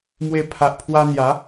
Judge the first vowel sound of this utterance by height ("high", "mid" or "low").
mid